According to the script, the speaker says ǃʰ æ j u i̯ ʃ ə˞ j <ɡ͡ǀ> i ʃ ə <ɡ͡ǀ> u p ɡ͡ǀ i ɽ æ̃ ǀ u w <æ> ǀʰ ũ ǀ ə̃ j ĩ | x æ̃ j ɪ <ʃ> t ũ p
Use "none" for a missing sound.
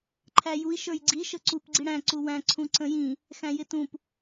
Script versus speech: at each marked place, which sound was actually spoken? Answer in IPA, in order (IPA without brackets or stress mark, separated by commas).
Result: ɡ͡ǀ, ǀ, æ̃, none